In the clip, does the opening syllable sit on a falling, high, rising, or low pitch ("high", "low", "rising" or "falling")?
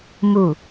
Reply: falling